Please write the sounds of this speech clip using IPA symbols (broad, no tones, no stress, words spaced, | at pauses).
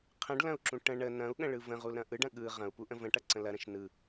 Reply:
qʰə̃ɖlɐ̃u̯ǁũ ʈə̃ ɳə nɐ̃u̯ɠə̃ɭɯ və̃ʁul ɾɐ̃ʔɯɖɐ̃ ɠɯ ʁɐ̃u̯ puʔə̃və̃ʈɐ ǀə̃lɐ ɾə̃ʃnɯ